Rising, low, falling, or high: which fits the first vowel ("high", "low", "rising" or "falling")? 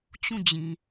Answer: falling